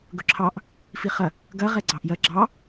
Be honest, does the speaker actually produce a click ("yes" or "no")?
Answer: yes